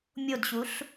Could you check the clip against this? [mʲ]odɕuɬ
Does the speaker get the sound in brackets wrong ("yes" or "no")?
no